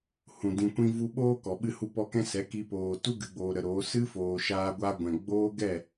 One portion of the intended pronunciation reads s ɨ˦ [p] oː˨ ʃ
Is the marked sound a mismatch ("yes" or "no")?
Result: yes